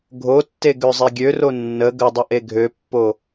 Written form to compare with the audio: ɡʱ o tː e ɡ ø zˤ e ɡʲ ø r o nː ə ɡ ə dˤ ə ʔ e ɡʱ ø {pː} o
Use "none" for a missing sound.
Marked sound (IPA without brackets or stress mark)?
pː